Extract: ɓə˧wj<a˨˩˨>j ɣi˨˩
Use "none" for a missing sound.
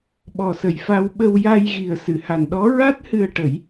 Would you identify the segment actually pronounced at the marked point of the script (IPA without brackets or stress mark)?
a˧